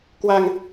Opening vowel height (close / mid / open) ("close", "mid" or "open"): open